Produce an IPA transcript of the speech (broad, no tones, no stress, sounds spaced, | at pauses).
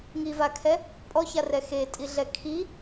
ŋ i v a kʰ ɛ | pʼ ɔ ç a r ɛ x e tʼ i ɮ ɛ kʰ i